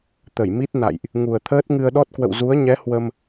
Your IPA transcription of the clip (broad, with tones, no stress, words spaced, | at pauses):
t̪ə˧˩jmi˦˥t̚ na̰˧˨jʔ | ŋu˨˩ə̯t̪ʰəː˦˥t̚ŋɨ˧ə̯ ɗɔ˦˥t̚kwə̰˧˨w zu˨˦ə̯ɲɛ˨˦ hwə˧m